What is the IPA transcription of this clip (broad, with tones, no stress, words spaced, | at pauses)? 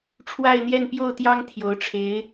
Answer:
ʈ͡ʂʰwa˥˧ɪ̯n̪jɛ˥˧npjo˥˩ʊ̯t̪jɑ˥ŋ t̪ʰjo˧˥ʊ̯ʈ͡ʂʰe˧˥ɪ̯